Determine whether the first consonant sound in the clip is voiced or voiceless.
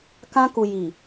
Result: voiceless